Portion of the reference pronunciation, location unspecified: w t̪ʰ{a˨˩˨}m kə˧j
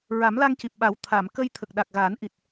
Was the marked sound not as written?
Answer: no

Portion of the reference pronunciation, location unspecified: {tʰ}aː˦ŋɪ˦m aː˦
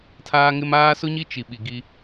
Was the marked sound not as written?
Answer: no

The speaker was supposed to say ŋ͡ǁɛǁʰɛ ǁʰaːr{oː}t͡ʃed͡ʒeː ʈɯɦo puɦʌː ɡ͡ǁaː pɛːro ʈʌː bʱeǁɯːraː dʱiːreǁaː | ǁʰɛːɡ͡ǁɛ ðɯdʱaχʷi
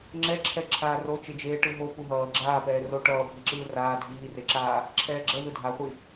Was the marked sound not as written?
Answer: yes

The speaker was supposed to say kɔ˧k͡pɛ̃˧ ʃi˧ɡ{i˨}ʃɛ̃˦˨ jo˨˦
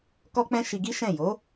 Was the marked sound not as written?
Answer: yes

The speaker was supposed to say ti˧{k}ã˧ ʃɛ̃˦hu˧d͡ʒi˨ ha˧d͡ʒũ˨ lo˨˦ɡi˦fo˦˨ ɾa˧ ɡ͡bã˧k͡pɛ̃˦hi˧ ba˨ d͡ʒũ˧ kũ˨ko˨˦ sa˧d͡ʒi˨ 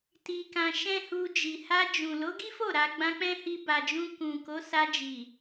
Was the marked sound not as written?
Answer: no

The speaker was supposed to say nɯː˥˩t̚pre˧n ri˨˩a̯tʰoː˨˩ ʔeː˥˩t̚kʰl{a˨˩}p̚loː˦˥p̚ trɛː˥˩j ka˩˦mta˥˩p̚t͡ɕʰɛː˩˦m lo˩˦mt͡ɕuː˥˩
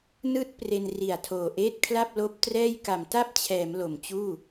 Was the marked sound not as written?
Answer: yes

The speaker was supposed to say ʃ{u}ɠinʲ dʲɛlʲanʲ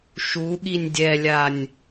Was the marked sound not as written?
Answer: no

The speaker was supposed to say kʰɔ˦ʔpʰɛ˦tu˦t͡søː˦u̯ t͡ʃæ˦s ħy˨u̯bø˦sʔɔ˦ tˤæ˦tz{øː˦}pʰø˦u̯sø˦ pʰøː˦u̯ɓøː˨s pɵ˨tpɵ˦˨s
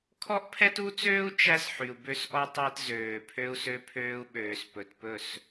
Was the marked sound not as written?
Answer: yes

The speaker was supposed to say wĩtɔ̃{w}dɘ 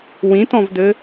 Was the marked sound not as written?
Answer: yes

